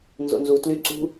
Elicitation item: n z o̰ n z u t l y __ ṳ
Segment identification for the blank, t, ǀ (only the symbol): ǀ